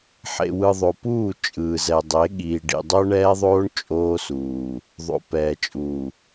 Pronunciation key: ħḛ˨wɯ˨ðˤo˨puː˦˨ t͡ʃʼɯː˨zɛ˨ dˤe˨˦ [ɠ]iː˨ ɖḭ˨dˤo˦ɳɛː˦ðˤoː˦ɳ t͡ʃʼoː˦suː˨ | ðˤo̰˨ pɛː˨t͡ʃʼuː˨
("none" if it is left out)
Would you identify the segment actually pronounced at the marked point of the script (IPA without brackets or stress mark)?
ɠ